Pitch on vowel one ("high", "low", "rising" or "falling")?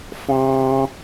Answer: high